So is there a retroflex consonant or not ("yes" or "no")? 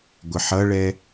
yes